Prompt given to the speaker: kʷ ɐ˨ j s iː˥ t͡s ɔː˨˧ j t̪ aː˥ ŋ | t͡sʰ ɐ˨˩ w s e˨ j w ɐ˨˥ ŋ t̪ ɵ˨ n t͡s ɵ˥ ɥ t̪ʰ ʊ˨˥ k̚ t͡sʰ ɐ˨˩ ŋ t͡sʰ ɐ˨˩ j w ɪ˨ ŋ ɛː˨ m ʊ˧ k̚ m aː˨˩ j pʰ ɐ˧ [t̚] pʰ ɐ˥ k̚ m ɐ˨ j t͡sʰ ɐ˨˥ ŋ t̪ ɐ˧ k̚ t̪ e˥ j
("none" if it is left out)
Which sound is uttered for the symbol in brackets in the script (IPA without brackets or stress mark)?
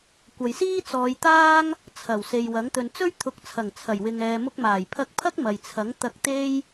k̚